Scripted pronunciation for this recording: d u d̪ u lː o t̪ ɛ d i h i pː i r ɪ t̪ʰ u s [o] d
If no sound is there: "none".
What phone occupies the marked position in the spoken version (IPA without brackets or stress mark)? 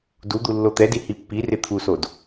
o